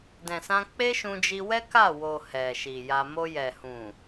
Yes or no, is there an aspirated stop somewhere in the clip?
no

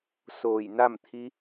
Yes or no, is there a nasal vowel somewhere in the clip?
no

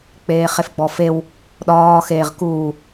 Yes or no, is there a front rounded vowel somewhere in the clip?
no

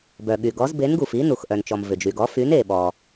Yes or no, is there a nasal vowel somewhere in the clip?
no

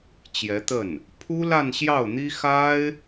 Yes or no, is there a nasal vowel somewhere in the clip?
no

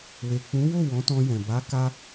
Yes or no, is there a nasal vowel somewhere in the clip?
yes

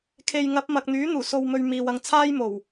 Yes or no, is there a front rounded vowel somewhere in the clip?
yes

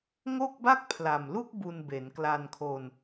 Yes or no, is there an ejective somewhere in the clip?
no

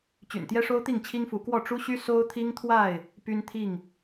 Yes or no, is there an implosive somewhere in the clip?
no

